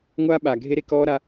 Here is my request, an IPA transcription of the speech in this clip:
ŋʷaː˦ ɓaː˨ɡʱe˦ɾe˦ kɔː˦ɾa˦

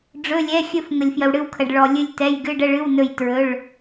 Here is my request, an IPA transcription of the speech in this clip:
ɖ͡ʐɵ˩˧˩lʲɛ˩˧˩xʲɵ˧˩f ŋə˩lʲfjə˩wɽɨ˧˩wkʰə˩ɖ ɭɔ˩ lʲɨ˧˩lʲtɛ˩˧˩j ɡɨ˩˧˩ɖə˥˩ɭɨ˩˧˩w nɵ˧˩jtɹɵ˩˧˩ɭ

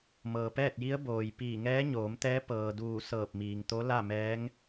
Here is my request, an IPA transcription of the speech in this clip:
mɤː˩pɛː˥˨t̚ji˧˥ə̯ boː˩j piː˧˩ ŋɛː˧˥ɲoː˩˧mt̪ɛː˧˥ pɤː˩duː˧˩ sɤː˧˩p̚miː˩ŋt̪o˧˥ la˥˨mɛː˧˥ŋ

